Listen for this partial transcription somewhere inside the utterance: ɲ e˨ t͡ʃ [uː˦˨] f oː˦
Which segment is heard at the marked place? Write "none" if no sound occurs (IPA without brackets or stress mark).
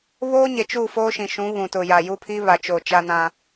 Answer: uː˦˨